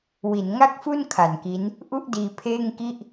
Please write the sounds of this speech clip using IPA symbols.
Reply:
w i˩˦ n ŋ a˥˩ k̚ f u˥˩ n kʰ a˨˩ n k i˦˥ n | ʔ u˥˩ ʔ d iː˧ pʰ eː˥˩ ŋ k i˥˩ ʔ

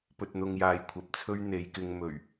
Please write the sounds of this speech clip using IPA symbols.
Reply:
p ɵ˨ t̚ n̪ ʊ˨ ŋ j aː˨ j kʷʰ ɐ˨ p̚ t͡sʰ ɵ˥ ɥ n̪ e˨˧ j k ɪ˧ ŋ m ɵ˨˩ ɥ

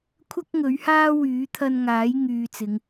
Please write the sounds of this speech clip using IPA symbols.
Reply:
kʷʰ ɐ˥ k̚ ŋ ɵ˨˥ ɥ h aː˥ w yː˨˥ t̪ʰ ɐ˧ n ŋ aː˨˥ j ŋ yː˨ t͡s ɪ˨˧ ŋ

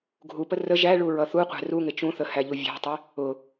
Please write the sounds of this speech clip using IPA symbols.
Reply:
ɡʱ u p ə r ə ʒ æ ɭ u ɹ ʌ θ u qʷ æ̤ r u ŋ ɪ t͡ʃ ũ θ ə h æ ʎ u vʲ æ̤ tˤ ɪ | ʊ

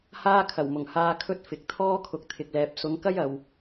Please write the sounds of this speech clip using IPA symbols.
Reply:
h aː˥ kʰ ɐ˨˩ w m ʊ˨˩ ŋ h aː˧ kʰ ɵ˥ t̚ f ɪ˨ k̚ t̪ʰ ɔː˥ kʰ ʊ˨ k̚ t̪ʰ ɪ˨ k̚ l ɛː˨ p̚ s ʊ˨˧ ŋ k ɐ˥ j ɐ˨ w

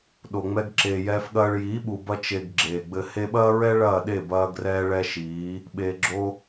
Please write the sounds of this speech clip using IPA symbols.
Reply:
ɗ o˨ ŋ͡m ɛ˧ ɡ ǁ eː˨ j ɛː˧ f ɠ ɐː˧ ɭ j iː˨˦ ɓ u˨ b ɐ˧ t͡ʃ e˨ ɡ ɡ͡ǁ eː˨ ɡ͡b ɘ˧ h e˧ ɓ ɐː˦ ɹ ɛ˦ ɭ ɐː˦˨ ɗ e˦˨ b ɐː˧ ɡ r ɛː˧ ɭ ɛ˦ ʃ iː˨˦ | ɓ eː˨ ɡ͡ǁ o˧

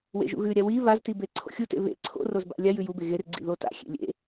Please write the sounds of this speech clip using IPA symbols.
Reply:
w ḛ ʒ ṵ ɣ ʉ ɾʲ a w i β a z t i b e ǀʰ o̰ xʲ u t ḛ β ḛ ǀʰ o̰ r o z b a̰ lʲ a j ʉ j u b e ɣ e r ɡ͡ǀ ḭ ð o t a̰ xʲ ḛ lʲ ḛ

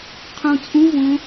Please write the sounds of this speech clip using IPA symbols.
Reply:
qʰ ũ t͡sʼ ũ v õ

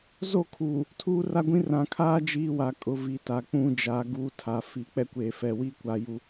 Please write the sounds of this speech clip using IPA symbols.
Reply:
z o˦˨ kʰ uː˨ | tʰ uː˦ r a˦ ɡʷ ĩ˦ r ã˨ kʰ aː˦ d͡ʒ iː˦ w a˨ kʼ ʊ˨˦ v i˨ t a˨ k͡p ũ˦ d͡ʒ a˨˦ ɡ uː˦ tʰ a˨ f i˨ k͡p ɛ˦ kʷ eː˨ f ɛ˨ w i˦ kʷ a˨ j u˦

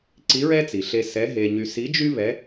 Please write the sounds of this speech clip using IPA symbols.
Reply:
ǀ i˧˥ ɹ ɛ˥ t͡s i˩ ɬ e˧ s ɛ˧˥ ɦ e˧ ɲ y˧ s i˧˥ d͡ʒ y˥ β ɛ˧˥

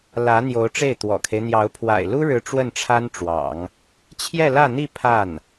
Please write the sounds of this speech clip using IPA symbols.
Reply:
l ä˧˥ n̪ j o˧˥ ʊ̯ ʈ͡ʂ e˥˩ ɪ̯ t̪ w ɔ̰˨˩ kʰ e˦ ɪ̯ n̪ j ɑ˧˥ ʊ̯ pʰ w a̰˨˩ ɪ̯ l u˥ ɻ ɻ̩˧˥ ʈ͡ʂ w ə˥˩ n ʈ͡ʂʰ a˥ n ʈ͡ʂ w ɑ̰˨˩˦ ŋ | t͡ɕʰ j ɛ˥˧ l ä˥˧ n̪ i˥˧ pʰ a˥˩ n

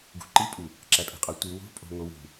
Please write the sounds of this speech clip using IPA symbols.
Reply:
ɡ ṳ ǃ i pʼ u | ǁ æ pʼ e̤ qʼ ɒ tʷ i w o̤ pʼ o̤ ŋ o w ṳ

